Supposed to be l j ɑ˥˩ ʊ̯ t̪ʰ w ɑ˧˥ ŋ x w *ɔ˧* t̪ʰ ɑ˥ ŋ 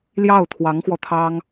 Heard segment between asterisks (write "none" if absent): ɔ˧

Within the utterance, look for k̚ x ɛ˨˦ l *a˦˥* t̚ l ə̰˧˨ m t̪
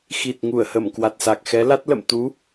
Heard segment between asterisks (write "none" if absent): a˦˥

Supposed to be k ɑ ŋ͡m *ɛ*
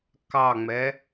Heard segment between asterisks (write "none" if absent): ɛ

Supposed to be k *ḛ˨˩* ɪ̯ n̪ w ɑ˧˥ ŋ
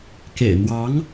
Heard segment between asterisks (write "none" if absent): ḛ˨˩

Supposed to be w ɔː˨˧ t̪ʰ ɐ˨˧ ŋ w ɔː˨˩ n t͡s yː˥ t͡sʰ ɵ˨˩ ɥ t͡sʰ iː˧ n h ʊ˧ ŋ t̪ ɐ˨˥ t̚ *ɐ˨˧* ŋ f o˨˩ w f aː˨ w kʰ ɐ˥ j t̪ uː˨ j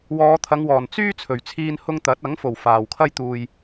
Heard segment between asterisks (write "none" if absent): ɐ˨˥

